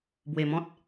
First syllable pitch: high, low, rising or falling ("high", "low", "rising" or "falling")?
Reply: low